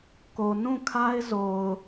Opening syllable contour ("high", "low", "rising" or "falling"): low